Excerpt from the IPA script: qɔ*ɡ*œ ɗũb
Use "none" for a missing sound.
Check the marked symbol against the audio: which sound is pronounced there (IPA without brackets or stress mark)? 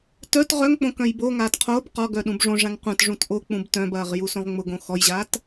ɡ